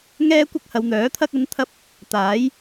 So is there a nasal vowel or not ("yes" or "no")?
no